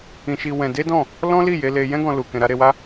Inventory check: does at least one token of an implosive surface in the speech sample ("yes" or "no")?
no